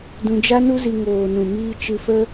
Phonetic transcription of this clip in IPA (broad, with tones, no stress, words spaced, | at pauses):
dũ˧d͡ʒa˦nu˦zi˧ ŋoː˨nũ˨miː˧ t͡ʃɨ˧fə˦